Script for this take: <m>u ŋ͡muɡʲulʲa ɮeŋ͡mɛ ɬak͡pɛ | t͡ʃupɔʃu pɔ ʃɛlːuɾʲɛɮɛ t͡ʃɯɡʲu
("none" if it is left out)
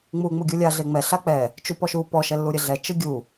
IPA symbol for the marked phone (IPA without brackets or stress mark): ŋ͡m